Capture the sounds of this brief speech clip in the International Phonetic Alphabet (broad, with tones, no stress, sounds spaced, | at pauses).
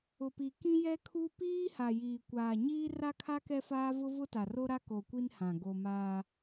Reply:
ʊ˨ p i˨ k ĩ˦ j ɛ˦ kʰ u˦ p iː˦ h a˨ j iː˨ kʷ aː˨ ɲ iː˦ r a˦ kʰ a˦ k ɛ˦ f aː˦ v ʊ˦ v ʊ˦ t a˨ r o˦ ɾ a˦ k o˨ kʷ i˦ n h ã˨ ɡ o˨ m aː˦